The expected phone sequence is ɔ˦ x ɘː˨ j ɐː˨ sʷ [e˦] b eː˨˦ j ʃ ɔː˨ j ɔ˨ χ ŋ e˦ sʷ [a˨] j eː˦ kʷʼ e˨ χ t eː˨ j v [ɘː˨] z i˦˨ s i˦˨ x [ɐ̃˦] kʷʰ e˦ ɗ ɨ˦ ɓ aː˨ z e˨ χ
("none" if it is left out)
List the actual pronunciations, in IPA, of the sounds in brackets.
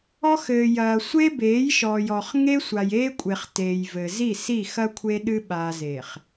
e˦, a˨, ɘ˨, ɐ˦

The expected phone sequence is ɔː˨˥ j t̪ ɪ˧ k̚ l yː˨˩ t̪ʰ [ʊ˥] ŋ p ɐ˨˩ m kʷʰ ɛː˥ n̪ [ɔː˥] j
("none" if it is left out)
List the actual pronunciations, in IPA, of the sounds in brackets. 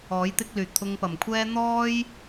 ʊ˧, ɔː˥

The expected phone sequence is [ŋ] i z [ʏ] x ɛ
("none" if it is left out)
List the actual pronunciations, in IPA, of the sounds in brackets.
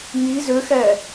ŋ, ʏ

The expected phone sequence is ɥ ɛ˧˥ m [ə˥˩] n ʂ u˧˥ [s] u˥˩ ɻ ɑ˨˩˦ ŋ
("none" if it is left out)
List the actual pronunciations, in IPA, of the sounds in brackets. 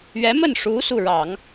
ə˥˩, s

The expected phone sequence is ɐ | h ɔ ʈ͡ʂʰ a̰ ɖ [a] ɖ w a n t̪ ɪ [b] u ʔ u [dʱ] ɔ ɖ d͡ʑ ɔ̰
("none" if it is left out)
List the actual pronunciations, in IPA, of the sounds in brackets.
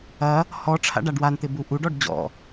a, b, ɖ

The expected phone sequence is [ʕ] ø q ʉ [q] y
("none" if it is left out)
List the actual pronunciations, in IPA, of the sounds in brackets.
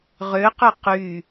ʁ, q

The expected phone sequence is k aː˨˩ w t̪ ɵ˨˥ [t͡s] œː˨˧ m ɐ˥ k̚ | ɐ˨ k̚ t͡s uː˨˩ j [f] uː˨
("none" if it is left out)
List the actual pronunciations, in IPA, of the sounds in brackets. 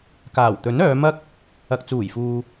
n, f

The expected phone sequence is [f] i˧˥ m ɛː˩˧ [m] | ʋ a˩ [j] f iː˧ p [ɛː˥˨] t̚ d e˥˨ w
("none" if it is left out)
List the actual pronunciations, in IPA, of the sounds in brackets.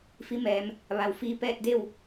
f, m, w, ɛː˥˨

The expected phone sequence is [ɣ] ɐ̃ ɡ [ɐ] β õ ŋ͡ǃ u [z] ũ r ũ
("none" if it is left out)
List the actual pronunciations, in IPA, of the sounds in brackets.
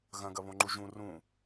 ɣ, ɐ, ʒ

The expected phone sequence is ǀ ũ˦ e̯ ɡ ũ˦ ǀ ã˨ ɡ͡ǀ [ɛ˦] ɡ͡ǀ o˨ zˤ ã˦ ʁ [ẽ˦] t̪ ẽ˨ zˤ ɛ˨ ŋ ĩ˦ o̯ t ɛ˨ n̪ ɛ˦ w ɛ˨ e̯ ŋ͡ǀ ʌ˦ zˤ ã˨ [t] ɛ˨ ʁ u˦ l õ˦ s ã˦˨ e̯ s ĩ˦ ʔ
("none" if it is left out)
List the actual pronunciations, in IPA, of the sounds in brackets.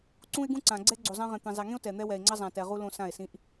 ɛ˦, ẽ˨, t

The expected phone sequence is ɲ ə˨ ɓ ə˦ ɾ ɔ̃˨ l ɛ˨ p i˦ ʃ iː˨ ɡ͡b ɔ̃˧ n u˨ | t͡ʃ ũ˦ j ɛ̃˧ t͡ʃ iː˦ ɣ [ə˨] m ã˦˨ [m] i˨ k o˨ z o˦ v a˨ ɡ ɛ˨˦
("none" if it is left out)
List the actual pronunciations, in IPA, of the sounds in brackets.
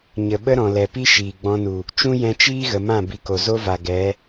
ə˨, b

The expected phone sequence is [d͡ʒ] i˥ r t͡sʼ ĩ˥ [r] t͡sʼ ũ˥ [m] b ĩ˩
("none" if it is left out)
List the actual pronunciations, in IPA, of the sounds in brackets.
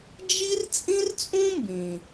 d͡ʒ, r, m

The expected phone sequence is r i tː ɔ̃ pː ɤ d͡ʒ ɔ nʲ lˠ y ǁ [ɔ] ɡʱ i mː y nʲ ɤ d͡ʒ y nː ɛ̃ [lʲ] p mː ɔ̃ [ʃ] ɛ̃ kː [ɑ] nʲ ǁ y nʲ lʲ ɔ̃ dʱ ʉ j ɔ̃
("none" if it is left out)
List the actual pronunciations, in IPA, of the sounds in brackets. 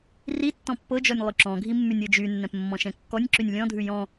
ɔ̃, none, ʃ, ɔ

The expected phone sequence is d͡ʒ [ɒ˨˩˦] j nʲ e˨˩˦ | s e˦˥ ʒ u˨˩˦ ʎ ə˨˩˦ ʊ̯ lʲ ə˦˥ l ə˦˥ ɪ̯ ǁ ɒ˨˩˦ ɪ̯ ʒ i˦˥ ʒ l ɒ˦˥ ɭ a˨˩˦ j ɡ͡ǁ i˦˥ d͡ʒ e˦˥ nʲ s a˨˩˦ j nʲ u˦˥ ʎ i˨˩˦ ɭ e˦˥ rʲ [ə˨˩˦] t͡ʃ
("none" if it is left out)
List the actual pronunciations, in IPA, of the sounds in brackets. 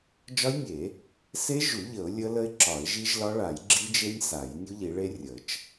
ɒ˦˥, ə˨˩˦

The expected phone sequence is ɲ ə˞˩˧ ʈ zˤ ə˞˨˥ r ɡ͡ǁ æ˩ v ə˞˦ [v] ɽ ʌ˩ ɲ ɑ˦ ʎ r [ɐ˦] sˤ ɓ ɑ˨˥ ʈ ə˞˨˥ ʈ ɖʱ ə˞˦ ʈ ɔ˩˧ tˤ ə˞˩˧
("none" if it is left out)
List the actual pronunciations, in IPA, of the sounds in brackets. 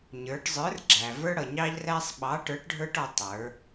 none, æ˦

